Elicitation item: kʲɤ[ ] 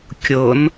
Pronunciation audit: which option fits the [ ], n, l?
n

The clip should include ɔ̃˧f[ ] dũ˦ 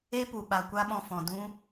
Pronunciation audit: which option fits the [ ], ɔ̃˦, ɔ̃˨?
ɔ̃˨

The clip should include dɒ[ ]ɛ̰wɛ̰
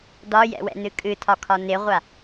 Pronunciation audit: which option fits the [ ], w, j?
j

